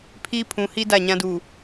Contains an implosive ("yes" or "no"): no